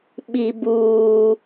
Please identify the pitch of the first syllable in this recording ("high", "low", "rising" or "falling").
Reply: high